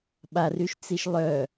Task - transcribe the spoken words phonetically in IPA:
ɓ a r y ʃ t͡s i ʃ lˠ œ

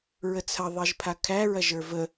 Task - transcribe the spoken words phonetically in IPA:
ɹ ə t͡sʰ ɐ ðˤ i ʒ pʰ a kʰ æ ɹ ɐ ʒ ə˞ v ə

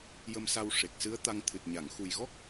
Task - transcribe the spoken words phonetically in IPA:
j ə˧ m s a˧ w ʂ e˨˩ k̚ s ɨ˧˥ ə̯ t̪ a˧ ŋ t̪ʰ ɨ˨˩ t̚ ɲ a˨˩˨ ŋ x u˨˩ j ɣ ɔ˦˥ k̚

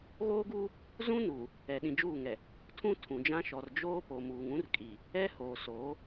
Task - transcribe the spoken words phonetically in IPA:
ɣ oː˦ ɡ uː˦ | z ũ˦ n uː˨ | ɛ˨ ɗ ĩ˨ d͡ʒ uː˦˨ ŋ ɛ˨ | tʰ ũ˦ tʰ ũ˨ d͡ʒ ã˦ ʃ ɔ˨ r d͡ʒ oː˦ p o˨ m uː˨ ŋ ũ˦ r kʼ i˨ | ɛ˦ h oː˨ s oː˨˦

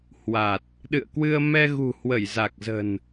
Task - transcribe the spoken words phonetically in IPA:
h w a˨˩ t̚ | ɗ ɨ̰˧˨ ə̯ k w ɨ˧ ə̯ m ɛ˧ ɣ ṳ˨˩ h w ə˧˩ j z a˨˩ k̚ z ə̤˨˩ n

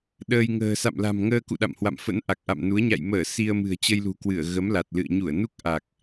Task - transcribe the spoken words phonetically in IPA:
ɗ əː˧ j ŋ ə̤ː˨˩ s a̰˧˨ m l a̤˨˩ m ŋ əː˧ k ṵ˧˨ ɗ a̰˧˨ m h w a̰˧˨ m f ə̰˧˥ n ʔ a˨˩ k̚ ʔ a̰˧˨ m n u˨˦ ə̯ ɲ a̰˧˨ j m əː˧˩ s i˧ ə̯ m ɨ̤˨˩ ə̯ t͡ɕ ə˧ j l ṳ˨˩ k w ɨ˧˩ ə̯ ɣ ə˨˦ m l a˨˩ t̚ l ɨ̰˧˨ ə̯ ɲ u˧˩ ə̯ n u˦˥ k̚ ʔ a˨˩ k̚

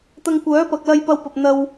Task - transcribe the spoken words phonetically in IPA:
t̪ ɐ˧ ŋ kʷ œː˨˥ p ɐ˨ k̚ l ɐ˧ j p ɐ˧ w p ɐ˨ p̚ n̪ ɐ˧ w

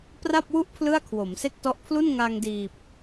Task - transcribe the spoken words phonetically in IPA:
p r a˥˩ p̚ w u˥˩ ʔ pʰ l ɯ˥˩ a̯ kʰ w o˩˦ m s e˥˩ k̚ t ɔ˦˥ ʔ pʰ l u˥˩ n ŋ a˧ ŋ d iː˨˩ p̚

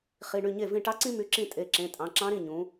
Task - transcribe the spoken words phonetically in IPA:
χ i˩˧˩ ɳ y˥˩ ɲ e˥˩ v ĩ˥˩ ʈ ɑ˥ ǀ ĩ˥ m y˩˧˩ ǁ ĩ˥˩ tʼ e˩˧˩ ǁ ẽ˩˧˩ tʼ ɑ̃˩˧ ǁ ɑ̃˧˥ ɾ ĩ˩˧˩ ɲ ũ˩˧

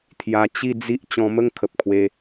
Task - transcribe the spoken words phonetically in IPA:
t̪ʰ j a˧ t͡ɕ i˥˧ d͡z i˦ ʔ t͡ɕ ɔ̃˧ m ə˥˧ ŋ kʰ ə˨ p̚ kʰ w e˧

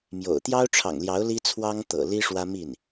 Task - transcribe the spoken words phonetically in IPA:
m j o̰˨˩ ʊ̯ t̪ j ɑ˥ ʊ̯ ʈ͡ʂʰ ɑ̰˨˩ ŋ l j ɑ˧˥ ʊ̯ l i˥ t͡sʰ w ɑ˥ ŋ t̪ ɤ̰˨˩ l i˥ ʂ w ä˥ m i˥˩ n

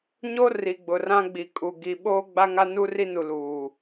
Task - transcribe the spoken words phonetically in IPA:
ɲ o˦ r i˨ ɡ͡b ʊ˨ r ã˦ ɡ͡b i˨ kʼ u˨ ɡ i˨ ɓ oː˦ ɡ͡b a˦ ŋ a˦ n u˦ r i˦ n u˨ l uː˨

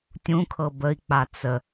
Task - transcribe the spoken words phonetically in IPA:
tʲ ũ kʰ ɤ b ə i̯ k͡p a t͡s ə

